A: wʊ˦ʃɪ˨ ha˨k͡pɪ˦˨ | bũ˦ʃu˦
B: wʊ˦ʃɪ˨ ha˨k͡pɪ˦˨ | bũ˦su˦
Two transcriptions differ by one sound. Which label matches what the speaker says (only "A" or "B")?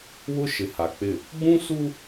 B